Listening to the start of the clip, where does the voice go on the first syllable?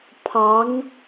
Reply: rising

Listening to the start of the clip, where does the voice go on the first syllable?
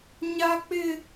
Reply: high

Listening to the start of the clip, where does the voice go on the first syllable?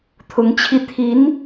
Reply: rising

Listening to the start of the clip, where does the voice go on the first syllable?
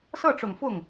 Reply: falling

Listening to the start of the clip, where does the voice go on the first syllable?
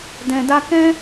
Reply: low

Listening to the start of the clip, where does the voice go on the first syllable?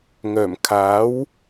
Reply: low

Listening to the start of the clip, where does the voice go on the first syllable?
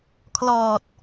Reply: low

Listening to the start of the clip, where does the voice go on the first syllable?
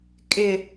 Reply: low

